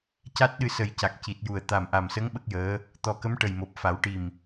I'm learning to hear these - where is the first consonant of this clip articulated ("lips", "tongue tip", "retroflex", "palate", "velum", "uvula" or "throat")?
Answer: palate